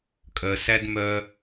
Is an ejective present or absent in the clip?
present